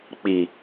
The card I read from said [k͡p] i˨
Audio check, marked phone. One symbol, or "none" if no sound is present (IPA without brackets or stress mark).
k͡p